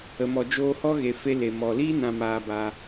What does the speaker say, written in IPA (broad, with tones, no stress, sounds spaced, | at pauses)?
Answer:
ə˨ m ɔ˨ d͡ʒ oː˧ h ɔ˦ ɣ e˨ f e˧ l e˨ m ɔ˨ l iː˦ n ã˧ m aː˧ b a˧